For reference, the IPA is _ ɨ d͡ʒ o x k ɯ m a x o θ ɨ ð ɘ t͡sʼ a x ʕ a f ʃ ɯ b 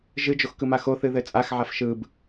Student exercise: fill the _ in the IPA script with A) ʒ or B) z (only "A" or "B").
A